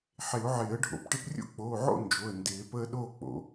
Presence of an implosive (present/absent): present